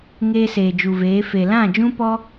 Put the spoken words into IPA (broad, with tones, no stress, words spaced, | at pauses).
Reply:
ŋeː˧seː˨d͡ʒu˨veː˨˦ fe˨lã˦˨d͡ʒũ˦pɔ˦